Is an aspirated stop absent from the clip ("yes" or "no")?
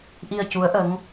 yes